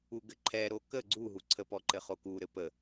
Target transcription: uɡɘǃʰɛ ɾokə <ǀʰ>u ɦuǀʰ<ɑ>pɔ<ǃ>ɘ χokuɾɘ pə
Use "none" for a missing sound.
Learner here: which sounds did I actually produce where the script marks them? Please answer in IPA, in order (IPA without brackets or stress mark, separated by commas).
ɡ͡ǀ, ə, ǃ